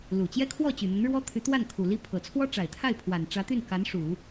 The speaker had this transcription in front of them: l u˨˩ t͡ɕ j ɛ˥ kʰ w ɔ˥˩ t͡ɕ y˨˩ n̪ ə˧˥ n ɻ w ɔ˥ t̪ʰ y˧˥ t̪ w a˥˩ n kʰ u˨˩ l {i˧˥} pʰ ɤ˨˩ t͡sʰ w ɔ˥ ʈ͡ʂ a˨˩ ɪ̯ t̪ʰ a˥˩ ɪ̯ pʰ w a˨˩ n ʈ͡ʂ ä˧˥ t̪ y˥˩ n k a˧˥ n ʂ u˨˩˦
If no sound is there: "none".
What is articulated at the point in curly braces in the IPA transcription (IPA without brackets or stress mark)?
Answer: i˥